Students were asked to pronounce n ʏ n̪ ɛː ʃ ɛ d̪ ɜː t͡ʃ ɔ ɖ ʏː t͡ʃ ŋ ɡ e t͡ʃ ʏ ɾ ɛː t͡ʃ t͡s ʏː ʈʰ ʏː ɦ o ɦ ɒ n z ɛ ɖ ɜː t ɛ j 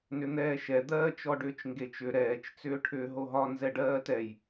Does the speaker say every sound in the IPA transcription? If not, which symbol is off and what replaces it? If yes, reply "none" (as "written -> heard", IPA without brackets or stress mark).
none